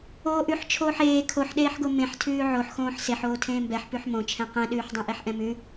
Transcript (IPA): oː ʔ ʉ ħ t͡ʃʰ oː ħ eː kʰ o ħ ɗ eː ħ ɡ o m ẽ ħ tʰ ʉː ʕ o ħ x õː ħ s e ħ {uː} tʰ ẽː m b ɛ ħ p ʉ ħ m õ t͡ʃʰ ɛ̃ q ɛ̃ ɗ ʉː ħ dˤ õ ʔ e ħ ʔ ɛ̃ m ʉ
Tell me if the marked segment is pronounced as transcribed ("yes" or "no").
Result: no